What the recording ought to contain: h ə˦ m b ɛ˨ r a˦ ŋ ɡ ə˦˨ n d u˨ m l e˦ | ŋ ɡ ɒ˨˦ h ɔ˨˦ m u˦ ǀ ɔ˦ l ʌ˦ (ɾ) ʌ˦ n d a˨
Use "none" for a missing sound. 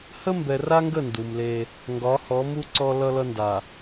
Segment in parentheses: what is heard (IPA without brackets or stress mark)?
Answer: l